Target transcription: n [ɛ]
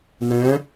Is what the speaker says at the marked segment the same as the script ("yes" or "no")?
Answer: no